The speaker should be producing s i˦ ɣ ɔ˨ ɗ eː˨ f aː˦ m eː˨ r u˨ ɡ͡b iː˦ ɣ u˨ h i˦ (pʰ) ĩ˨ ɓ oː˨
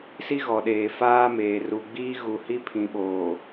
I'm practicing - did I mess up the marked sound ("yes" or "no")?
no